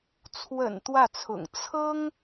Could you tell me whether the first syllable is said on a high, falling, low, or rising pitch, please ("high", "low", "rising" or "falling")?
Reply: low